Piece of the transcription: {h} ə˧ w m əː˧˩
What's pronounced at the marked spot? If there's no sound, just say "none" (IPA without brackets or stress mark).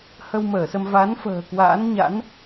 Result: h